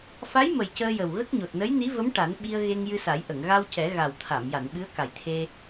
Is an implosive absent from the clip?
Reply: no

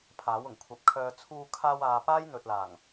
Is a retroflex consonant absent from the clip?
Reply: yes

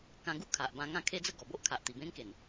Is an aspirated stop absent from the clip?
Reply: no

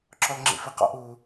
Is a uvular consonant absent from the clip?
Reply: no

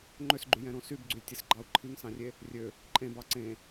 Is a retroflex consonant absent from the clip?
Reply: yes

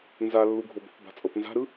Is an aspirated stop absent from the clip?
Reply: yes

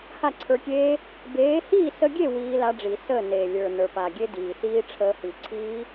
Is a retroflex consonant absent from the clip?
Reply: no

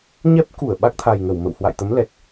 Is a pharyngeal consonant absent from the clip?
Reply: yes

